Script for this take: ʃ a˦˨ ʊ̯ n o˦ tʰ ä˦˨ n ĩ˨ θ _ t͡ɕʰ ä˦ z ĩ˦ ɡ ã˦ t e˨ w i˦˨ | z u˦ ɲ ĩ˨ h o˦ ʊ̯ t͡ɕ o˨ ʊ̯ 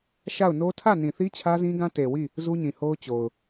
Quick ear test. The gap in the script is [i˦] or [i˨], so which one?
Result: i˦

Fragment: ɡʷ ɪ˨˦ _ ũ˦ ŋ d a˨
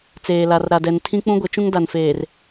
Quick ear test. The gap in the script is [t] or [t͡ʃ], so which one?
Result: t͡ʃ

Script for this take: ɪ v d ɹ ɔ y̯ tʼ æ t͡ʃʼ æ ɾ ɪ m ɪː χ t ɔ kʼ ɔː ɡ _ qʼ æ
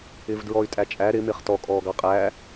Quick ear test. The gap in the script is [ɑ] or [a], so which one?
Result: ɑ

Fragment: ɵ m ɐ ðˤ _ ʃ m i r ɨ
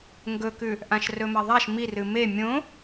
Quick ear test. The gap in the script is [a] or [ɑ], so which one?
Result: a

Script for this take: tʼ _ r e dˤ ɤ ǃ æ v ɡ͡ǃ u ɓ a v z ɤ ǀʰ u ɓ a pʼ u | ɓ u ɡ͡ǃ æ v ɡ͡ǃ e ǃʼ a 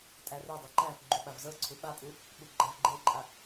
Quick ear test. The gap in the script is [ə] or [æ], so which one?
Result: æ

